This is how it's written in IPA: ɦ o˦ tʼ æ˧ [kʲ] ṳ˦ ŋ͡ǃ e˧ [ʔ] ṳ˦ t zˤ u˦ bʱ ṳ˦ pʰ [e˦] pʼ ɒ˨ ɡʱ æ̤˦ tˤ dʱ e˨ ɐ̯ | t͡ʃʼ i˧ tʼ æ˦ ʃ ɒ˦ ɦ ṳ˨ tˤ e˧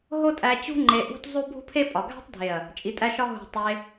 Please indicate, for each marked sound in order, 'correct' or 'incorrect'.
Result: incorrect, correct, correct

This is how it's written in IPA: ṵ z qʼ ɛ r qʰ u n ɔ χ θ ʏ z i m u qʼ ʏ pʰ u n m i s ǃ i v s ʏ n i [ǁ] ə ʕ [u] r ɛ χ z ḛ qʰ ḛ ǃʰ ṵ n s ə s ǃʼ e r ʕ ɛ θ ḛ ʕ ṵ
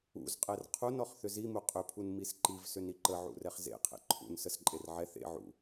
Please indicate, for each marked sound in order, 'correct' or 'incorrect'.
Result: incorrect, incorrect

